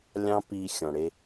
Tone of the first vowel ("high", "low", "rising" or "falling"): high